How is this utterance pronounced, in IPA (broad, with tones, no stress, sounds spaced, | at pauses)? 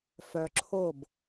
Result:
f œ˧ ǁʰ o˥˩ b